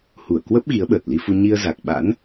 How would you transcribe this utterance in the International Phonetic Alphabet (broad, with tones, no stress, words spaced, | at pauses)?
hu˧˩ə̯kwə˦˥p̚ ɣi˨˦ə̯ɓəː˨˩t̚li˧fu˧ ɲi˧ə̯za˨˩k̚ɓa̰˧˥n